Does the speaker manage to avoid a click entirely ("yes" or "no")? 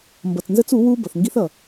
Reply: yes